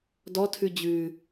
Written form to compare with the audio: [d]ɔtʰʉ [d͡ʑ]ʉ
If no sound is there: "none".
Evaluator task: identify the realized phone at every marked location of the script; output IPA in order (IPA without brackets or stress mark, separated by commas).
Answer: d, d͡ʑ